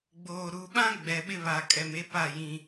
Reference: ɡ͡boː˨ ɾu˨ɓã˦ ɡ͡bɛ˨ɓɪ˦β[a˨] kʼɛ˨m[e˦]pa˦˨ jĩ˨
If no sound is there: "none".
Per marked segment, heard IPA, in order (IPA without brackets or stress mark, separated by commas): a˨, e˦